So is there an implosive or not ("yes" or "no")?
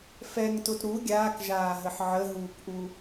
no